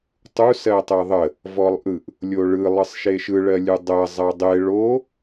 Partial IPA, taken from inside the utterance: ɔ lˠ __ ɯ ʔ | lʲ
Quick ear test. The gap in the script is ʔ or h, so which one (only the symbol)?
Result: ʔ